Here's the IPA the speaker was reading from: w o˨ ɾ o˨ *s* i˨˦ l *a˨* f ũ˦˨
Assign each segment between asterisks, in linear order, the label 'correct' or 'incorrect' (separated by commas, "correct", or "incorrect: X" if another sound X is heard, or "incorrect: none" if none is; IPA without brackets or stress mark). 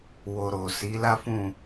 correct, incorrect: a˦